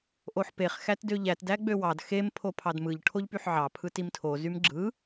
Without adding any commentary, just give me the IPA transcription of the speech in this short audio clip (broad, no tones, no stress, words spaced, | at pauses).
ʔoħpeχ xætdøʎæt dæɡ͡bøwɑd xem pʰopʰɑdmɯʎ ʈʰoʎpyħʕɑ pʰɯtimtʰo zymɡ͡ǁɯ